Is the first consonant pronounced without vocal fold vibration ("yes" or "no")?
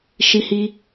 yes